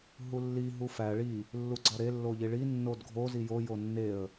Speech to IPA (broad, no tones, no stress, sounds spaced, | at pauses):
ɦ u lː i ɦ u f æ ɭ i | lː u ɡ͡ǀ ɒ ɾ e lː o ʎ i ɭ i nː o d ɡʱ o z i j o j o nː e ə̯